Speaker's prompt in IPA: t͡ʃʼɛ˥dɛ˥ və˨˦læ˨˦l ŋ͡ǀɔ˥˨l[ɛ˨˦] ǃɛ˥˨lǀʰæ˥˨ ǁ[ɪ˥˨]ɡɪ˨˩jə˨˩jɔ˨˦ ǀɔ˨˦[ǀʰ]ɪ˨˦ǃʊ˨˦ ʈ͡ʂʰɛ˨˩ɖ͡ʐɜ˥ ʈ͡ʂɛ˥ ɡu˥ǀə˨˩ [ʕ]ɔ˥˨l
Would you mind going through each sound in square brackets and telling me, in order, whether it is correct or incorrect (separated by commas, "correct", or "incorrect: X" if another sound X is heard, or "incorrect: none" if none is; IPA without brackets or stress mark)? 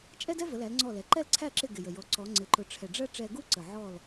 correct, correct, incorrect: ŋ͡ǀ, correct